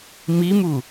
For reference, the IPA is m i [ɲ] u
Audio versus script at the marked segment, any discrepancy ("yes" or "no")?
yes